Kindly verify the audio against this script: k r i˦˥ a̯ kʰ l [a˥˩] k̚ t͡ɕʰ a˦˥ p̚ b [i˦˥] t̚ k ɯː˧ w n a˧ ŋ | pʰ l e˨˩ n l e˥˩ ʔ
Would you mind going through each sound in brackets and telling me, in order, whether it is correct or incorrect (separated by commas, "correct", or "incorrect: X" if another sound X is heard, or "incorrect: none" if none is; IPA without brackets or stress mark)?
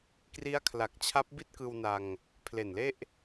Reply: incorrect: a˨˩, incorrect: i˥˩